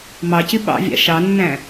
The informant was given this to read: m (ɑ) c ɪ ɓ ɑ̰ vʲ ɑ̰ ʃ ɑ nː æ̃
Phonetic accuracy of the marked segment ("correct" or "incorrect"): correct